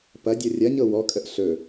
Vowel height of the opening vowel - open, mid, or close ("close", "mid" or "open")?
open